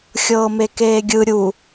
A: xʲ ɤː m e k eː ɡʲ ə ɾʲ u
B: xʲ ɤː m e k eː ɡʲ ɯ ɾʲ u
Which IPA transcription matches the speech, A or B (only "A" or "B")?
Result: B